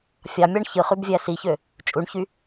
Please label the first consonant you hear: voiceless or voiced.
voiceless